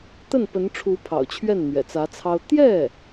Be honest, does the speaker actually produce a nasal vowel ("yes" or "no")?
no